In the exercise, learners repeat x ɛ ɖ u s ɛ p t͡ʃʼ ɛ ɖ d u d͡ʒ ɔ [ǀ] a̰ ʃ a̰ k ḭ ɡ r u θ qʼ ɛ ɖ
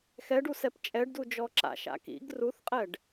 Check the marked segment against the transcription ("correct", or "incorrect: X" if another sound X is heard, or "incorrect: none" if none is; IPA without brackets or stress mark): incorrect: ǁ